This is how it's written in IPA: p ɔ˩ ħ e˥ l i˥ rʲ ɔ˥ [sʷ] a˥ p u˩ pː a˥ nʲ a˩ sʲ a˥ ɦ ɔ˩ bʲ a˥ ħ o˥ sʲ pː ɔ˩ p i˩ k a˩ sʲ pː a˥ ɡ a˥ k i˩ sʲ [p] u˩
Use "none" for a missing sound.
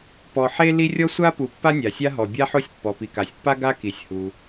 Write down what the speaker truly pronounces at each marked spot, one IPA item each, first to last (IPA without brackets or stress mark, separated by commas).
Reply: sʷ, h